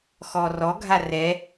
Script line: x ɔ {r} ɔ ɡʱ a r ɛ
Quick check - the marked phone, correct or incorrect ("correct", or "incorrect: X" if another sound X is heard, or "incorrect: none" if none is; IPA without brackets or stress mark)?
correct